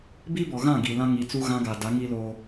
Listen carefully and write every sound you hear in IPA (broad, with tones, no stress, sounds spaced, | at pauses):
b i˦ b ɔ˨ ɣ ã˦˨ ɡ i˨ l ã˦ ŋ i˨ t͡s u˦ ɣ ã˦ ɡ a˨ d a˨˦ ŋ i˦ l oː˦